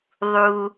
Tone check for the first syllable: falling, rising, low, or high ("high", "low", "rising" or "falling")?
low